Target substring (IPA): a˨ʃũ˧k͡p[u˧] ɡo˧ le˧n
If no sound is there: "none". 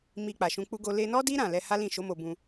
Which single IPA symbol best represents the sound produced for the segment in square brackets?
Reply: u˦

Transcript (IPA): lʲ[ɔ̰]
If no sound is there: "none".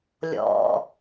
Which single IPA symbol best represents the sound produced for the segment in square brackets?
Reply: ɔ̰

